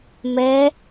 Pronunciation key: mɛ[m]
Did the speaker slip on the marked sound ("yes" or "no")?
yes